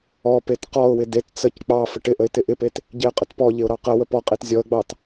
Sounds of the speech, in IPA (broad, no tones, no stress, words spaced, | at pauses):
ɔpet qɔʊ̯wɪ det t͡səc k͡pɑ fəʈɪʔəɪ̯ tɪʔɪpet | ɟeə̯qʼətpɔʎɪʊ̯ ɾɑqəwəp ɔqʼet zʲɔə̯ɡ͡bɑt